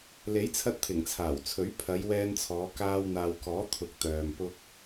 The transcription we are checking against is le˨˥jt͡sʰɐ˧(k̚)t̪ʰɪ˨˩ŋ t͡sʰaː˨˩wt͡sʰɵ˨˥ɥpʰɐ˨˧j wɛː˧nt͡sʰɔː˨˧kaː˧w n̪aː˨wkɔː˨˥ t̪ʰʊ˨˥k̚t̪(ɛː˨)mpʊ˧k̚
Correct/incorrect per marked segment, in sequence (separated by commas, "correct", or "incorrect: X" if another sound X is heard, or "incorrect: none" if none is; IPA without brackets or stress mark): incorrect: t̚, incorrect: œː˨